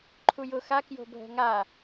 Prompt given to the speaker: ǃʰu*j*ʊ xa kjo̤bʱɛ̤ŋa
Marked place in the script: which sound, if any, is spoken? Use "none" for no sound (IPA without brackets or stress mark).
j